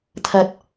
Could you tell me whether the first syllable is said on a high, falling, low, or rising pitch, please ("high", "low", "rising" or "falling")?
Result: low